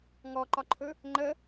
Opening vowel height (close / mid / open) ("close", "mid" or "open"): mid